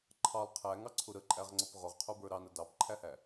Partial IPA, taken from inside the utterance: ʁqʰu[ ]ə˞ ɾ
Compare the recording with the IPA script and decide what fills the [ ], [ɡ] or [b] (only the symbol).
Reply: b